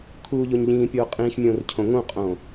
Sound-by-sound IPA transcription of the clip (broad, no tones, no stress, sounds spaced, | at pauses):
kʰ uː ʎ o ɲ ʎ ĩː pʲ oː qʼ ĩː ʃ mʲ õː r cʰ õ ŋ õ qʼ õː